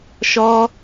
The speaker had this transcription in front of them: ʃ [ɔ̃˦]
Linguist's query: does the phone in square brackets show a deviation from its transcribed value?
yes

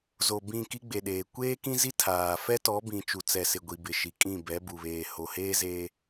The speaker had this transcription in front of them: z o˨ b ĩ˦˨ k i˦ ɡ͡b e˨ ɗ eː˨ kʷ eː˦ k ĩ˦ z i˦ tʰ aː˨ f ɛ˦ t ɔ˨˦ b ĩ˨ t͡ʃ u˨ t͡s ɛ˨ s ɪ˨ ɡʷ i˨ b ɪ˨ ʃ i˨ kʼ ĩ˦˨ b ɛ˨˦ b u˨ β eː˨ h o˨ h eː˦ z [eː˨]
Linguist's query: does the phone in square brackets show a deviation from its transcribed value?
yes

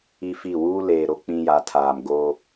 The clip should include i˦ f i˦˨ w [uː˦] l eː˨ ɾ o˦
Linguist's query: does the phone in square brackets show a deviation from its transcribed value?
no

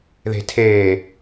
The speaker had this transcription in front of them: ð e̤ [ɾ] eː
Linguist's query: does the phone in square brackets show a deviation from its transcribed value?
yes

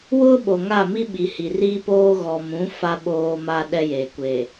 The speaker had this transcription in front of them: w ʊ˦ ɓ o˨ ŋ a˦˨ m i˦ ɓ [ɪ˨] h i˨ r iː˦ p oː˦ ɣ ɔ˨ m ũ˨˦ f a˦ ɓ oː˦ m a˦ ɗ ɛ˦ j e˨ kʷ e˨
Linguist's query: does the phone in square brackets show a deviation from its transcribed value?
yes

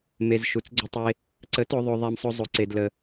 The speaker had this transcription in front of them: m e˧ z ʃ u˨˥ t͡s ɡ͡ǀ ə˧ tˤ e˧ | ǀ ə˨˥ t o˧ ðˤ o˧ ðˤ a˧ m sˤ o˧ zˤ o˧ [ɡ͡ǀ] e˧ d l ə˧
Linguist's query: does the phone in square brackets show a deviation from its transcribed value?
yes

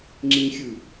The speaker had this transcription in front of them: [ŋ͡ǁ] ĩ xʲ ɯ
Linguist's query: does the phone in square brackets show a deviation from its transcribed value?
no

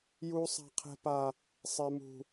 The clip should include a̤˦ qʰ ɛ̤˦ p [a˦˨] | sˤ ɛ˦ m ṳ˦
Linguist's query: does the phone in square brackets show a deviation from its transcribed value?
yes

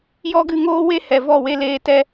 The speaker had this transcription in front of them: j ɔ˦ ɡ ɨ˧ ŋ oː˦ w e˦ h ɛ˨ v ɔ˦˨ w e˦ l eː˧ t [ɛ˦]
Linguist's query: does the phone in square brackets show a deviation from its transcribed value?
no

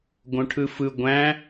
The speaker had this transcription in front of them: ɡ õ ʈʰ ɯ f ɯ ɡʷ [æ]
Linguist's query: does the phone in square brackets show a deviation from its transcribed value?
yes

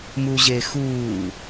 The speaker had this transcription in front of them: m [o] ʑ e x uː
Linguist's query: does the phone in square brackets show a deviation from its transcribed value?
yes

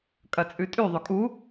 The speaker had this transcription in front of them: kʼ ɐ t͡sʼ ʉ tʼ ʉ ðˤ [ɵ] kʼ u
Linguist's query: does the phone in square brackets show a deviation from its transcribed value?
no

